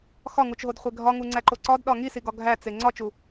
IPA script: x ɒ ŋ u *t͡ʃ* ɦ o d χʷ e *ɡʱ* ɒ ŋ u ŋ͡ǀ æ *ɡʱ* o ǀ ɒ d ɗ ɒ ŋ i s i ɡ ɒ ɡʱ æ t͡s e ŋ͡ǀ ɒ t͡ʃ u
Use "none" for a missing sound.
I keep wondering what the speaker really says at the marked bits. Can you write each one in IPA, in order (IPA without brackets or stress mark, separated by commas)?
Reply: t͡ʃ, ɡʱ, ǃ